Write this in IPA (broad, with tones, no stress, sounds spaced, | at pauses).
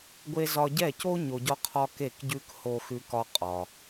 ɡʷ e˥ z ɒ˧ ɟ ɛ˥˩ c o˥ ɲ o˧ ɟ ɒ˥ qʰ ɒ˥ k e˥˩ k ɟ ʉ˥ k h o˥ x ʉ˥ k ɒ˥ qʼ ɒ˩